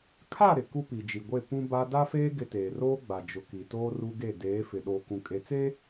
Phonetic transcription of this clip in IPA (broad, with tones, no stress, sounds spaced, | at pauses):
kʰ a˦˨ ɾ ɪ˨ k u˦ p i˨ d͡ʒ i˨ ɡʷ e˦˨ p ũ˦ b a˦ d a˦ f eː˦ ɡ ɪ˦ t eː˨ r oː˦ ɡ͡b a˨ d͡ʒ ʊ˨ k i˨ t oː˦ r u˦ ɡ e˦˨ d eː˨˦ f ɪ˨ ɗ oː˨ k ũ˨ kʼ e˨ t͡s e˦